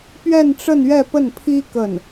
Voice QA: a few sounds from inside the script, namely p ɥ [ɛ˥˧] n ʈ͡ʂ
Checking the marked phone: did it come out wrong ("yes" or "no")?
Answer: no